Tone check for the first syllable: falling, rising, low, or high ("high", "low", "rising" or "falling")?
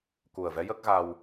low